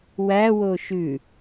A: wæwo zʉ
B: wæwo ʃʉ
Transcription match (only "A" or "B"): B